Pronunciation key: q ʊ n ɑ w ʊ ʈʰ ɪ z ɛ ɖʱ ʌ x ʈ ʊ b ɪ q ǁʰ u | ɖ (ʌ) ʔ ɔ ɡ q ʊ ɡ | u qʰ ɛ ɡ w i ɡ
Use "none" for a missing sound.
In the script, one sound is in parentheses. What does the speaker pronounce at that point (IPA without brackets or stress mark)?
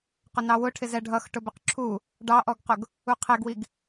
ɑ